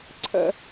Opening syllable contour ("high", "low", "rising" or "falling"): high